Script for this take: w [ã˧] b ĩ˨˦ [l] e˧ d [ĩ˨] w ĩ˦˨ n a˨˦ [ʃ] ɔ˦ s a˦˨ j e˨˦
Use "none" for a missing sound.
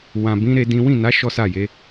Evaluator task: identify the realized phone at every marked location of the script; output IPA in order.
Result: ã˨, ɾ, ĩ˦, ʃ

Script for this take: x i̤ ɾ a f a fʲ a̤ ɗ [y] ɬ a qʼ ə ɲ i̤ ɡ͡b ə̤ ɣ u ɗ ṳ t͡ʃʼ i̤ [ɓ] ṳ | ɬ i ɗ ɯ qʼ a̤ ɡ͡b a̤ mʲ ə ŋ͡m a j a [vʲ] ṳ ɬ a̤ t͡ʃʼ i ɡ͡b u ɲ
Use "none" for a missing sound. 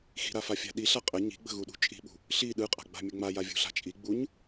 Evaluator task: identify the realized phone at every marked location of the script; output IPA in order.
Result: i, ɓ, vʲ

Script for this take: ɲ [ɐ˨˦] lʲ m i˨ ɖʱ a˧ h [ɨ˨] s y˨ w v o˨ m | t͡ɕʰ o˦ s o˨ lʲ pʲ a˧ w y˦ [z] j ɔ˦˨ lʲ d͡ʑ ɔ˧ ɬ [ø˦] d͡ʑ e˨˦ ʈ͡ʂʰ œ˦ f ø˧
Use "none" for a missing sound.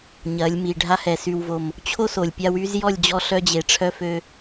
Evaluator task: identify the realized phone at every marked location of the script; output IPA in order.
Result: ɐ˨˦, ɛ˨, z, œ˦

